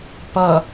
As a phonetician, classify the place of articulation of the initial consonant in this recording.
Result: labial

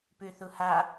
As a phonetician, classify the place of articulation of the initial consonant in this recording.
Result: labial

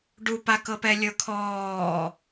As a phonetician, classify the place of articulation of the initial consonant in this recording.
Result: retroflex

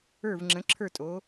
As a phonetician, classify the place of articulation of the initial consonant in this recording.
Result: labial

